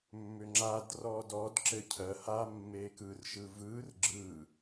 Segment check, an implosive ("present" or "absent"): absent